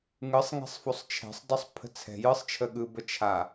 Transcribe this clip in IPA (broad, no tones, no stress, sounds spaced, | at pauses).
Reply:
ŋ ɯ sˤ ŋ ɛ̤ sˤ f o sˤ t͡ʃʰ ɛ̤ sˤ dˤ o sˤ pʰ ə̤ t͡sʰ ɛ̤ j ɯ sˤ t͡ʃʰ ə ɠ ɯ b ə t͡ʃʰ a